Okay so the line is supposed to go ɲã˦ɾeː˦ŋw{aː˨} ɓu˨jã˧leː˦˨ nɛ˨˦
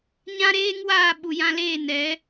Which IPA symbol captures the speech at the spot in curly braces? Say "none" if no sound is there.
aː˦˨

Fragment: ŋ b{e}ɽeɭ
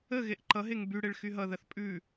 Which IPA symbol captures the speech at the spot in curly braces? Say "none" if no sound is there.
y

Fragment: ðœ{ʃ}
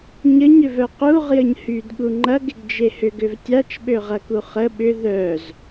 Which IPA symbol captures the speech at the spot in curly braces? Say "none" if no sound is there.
z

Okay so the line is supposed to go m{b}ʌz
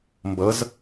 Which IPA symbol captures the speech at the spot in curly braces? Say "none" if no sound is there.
b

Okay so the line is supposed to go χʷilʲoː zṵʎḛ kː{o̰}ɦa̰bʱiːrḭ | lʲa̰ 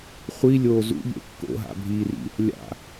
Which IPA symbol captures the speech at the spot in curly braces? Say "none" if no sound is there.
o̰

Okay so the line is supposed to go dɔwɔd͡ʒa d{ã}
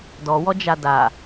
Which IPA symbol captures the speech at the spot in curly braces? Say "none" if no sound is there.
a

